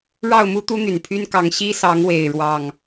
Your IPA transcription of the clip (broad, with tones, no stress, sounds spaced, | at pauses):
ɻ ɑ˥˨ ʊ̯ m u˦ t̪ u˦ n̪ y˨˩ n pʰ y˦ n k ɑ˨˦ ŋ ɕ i˦ s ɑ˨˦ ŋ w e˨˩ ɪ̯ ɻ w ɑ˥˨ ŋ